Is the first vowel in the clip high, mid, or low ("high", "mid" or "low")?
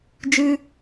high